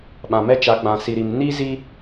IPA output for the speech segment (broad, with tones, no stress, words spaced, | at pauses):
ɓã˨mɛ˦t͡ʃa˨˦ɡ͡bã˨ si˨ɾi˨m ni˦zi˦